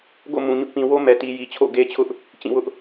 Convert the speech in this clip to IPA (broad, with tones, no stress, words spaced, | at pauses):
ɡo̰˦˨mũ˨ɲʊ˦ʔ pĩ˨wo˦mɛ˨ti˨ ji˨t͡ɕʰo̰˦˨ɡe˦t͡ɕʰʊ˦ʔ | t͡ɕĩ˦˨ wʊ˦ʔ